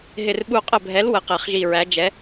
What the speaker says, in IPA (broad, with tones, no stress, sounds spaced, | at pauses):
ɦ ɪ˧˩ r ɓ u˧˩ qʼ ə˧˩ bʱ ɛ˩˥ l w ə˩˥ q ɛ˧˩ χ ʒ i˧˩ ɹ æ˩˥ d͡ʒ ɛ˩˥